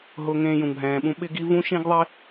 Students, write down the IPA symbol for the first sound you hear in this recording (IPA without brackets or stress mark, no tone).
ɦ